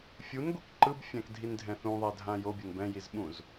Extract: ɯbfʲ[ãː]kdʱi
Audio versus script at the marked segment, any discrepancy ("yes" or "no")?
yes